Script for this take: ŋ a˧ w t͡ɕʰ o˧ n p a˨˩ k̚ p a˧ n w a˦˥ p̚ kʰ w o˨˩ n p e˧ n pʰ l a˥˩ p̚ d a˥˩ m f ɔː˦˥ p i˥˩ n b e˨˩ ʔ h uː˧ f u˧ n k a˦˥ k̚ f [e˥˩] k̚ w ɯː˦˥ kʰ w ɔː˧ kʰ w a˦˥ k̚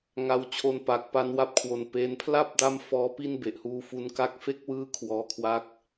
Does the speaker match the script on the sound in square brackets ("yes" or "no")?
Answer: no